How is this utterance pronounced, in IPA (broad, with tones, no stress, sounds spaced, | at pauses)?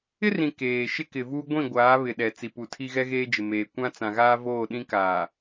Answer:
ɪ˦ r ĩ˨ k eː˨ ʃ ɪ˦ k ɪ˨ v uː˦ ɡʷ ĩ˦˨ ɡʷ aː˨˦ β ɪ˨ ɗ ɛ˨ t͡s i˨ p u˨ tʰ i˦ ɣ ɛ˦ ɣ eː˦ d͡ʒ ɪ˨ m eː˨ kʷ ã˦ t͡s ã˨ ɣ aː˦ v oː˦˨ ɗ ĩ˦ k aː˨